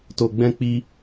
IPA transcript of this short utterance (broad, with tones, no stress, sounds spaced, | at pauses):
t o˧ ɡ͡b ɛ̃˦ k͡p i˦